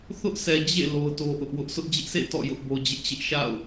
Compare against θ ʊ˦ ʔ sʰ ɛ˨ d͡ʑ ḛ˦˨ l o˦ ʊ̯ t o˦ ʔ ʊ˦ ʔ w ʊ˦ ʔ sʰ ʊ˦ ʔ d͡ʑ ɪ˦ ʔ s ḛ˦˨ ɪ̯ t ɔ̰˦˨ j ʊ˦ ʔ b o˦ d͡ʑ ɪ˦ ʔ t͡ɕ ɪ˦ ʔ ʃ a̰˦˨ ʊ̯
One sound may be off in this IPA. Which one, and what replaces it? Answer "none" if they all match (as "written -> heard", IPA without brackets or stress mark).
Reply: none